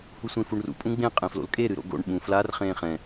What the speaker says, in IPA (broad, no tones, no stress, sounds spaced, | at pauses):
h u sʷ ẽ f u ɳ r ṵ pʼ ũ ɡ͡b ẽ qʼ ẽ f l o̰ l kʼ e ɾ ɨ ɾ o̰ ɡ o̰ ɳ ɓ ũ f l a r χ ẽː χ ɛ̃